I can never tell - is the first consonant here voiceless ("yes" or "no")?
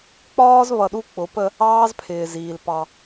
yes